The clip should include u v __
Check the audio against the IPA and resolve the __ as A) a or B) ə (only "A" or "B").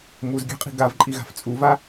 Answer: A